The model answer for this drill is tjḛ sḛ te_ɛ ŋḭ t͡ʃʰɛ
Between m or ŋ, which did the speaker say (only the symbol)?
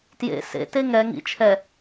ŋ